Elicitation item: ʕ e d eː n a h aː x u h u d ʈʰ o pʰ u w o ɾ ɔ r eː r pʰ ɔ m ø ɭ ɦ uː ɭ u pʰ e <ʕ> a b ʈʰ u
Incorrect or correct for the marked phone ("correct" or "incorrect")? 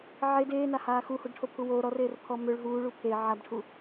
correct